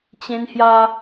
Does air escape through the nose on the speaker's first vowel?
yes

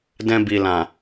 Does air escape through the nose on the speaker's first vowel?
yes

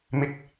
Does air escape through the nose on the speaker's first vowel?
no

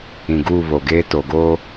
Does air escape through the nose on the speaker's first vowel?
yes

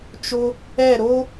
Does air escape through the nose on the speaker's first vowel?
no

